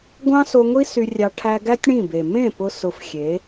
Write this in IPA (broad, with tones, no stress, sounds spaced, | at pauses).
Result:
ɡʷ ɑ̃˦ s o˧ ŋʷ i˦ s y˧ rʲ ɑ˧ ʈʰ æ˧ ɡ æ˦ tʲ ɽ ĩ˦˨ b e˨ m ẽ˦˨ p ʊ˧ s ʊ˧ f xʲ e˨˦